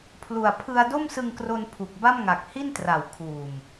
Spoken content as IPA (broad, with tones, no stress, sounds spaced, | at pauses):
pʰ l u˨˩ a̯ pʰ ɯ˧ a̯ d o˥˩ m s ɯ˧ ŋ k r o˧ n pʰ u˨˩ k̚ b a˥˩ m ŋ a˨˩ k̚ h i˥˩ n t r a˩˦ w kʰ uː˨˩ m